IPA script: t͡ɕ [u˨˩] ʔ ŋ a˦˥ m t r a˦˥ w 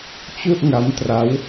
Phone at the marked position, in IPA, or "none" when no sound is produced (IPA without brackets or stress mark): u˥˩